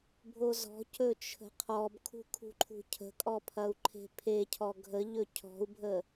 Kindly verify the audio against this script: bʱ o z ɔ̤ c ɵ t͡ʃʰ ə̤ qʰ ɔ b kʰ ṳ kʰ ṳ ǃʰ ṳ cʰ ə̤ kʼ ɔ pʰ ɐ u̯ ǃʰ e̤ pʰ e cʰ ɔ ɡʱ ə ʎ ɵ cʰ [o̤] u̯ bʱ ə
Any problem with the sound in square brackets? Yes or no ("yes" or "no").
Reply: yes